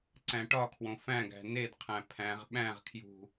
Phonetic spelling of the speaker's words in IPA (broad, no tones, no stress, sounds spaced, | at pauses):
ǀ æ̃ ʈ ɒ kʰ w õ f æ̃ ɡ æ̤ n e d qʰ æ̃ pʰ æ̃ ʁ ɓ æ̃ ʁ kʰ j ṳ